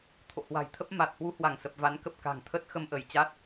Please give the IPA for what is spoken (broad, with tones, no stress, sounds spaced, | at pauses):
t̪ʰ o̰˧˨ h w a̤˨˩ j t̪ʰ ə˦˥ p̚ m a˨˩ t̚ h w u˨˦ h w a˧˩ ŋ s ə˨˩ p̚ v a˨˦ n k ə˨˩ p̚ k a̤˨˩ ŋ t̪ʰ ə˦˥ t̚ x ə˧ m ʔ ə˧˩ j t͡ɕ a˦˥ t̚